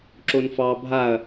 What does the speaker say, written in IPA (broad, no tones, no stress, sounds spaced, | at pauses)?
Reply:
ǁ o n f ɑ bʱ a ɐ̯